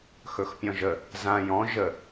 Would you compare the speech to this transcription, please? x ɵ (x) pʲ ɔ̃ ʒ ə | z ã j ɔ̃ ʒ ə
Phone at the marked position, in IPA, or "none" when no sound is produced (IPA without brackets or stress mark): x